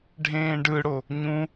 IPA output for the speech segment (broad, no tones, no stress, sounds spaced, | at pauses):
ɖʱ ẽː ɖ ɯ ɽ o | ɲ ũ